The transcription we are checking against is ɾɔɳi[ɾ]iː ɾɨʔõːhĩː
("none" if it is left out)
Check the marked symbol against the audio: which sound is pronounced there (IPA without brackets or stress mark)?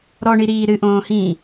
ɾ